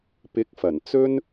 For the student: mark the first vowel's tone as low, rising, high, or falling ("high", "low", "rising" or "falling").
rising